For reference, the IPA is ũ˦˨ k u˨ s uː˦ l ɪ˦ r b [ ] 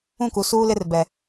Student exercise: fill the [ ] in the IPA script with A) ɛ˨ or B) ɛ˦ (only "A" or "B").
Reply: A